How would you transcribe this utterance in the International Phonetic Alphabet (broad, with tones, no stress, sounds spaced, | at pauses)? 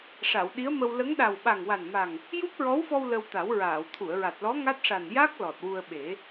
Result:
ʂ a˨˩˨ w ɗ i˧˥ ə̯ m ə˧ w l ə˧˥ ŋ ɗ a˨˩ w ɓ a˨˩ ŋ w a˨˩ n m a˨˩ ŋ | j u˦˥ p̚ ɹ ɔ˧˥ w f ɔ˧ w l ə˧ w t̪ a˨˩˦ w ɹ aː˨˩˨ w t̪ʰ u˨˩˨ ə̯ ɹ a˨˩ t̚ l ɔ˧˥ ŋ a˦˥ t̚ ʂ a˨˩ n j a˦˥ k̚ l ɔ˨˩ t̚ w u˧ ə̯ ɓ e˨˩˦